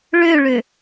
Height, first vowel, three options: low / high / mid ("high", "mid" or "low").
mid